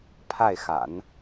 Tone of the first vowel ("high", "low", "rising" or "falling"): falling